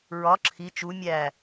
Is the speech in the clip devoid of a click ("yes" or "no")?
no